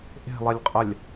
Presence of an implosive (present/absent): absent